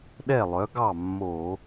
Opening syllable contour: falling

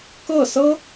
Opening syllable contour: falling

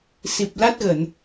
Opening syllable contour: low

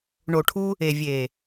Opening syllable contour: low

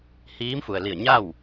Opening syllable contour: rising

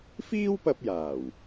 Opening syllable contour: high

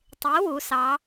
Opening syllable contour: rising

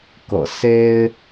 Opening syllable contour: low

